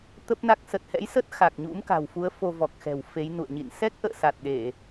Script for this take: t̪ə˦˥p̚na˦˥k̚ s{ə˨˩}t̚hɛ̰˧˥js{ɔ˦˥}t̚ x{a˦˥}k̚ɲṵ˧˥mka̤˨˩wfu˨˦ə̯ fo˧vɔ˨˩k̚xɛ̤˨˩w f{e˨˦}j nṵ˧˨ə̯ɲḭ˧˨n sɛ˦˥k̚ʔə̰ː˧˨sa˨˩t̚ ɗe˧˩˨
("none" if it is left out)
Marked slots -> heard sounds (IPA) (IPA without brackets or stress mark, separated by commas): ə˨˩, ə˦˥, a˨˩, e˨˦